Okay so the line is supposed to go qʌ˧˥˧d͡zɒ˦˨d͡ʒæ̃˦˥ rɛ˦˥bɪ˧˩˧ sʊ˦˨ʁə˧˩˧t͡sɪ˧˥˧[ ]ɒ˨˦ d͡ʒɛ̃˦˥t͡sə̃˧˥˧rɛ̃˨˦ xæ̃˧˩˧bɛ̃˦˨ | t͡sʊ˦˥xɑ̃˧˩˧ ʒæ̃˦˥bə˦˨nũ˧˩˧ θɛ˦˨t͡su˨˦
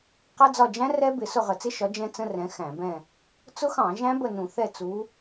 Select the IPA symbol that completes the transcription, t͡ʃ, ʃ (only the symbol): ʃ